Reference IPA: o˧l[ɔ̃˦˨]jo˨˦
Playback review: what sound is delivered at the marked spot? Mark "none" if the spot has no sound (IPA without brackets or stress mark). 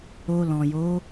ɔ̃˨